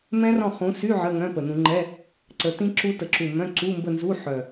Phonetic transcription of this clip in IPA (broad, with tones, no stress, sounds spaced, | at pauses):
m ɛ̃˦˥ r ɔ̃˦˨ χ ũ˨˦ s y˧˥˧ ʕ ə˧˥˧ ŋ œ̃˧˥˧ p ə˨˩ n ũ˧˩˧ ŋ͡ǃ ɛ˧˥˧ | ǀ ə˨˦ t ĩ˦˥ ǁ u˦˥ t ə˨˩ ǁ u˨˩ m œ̃˧˥˧ ǀ u˧˥˧ m b ə˦˨ n z u˧˥˧ ħ œ˨˩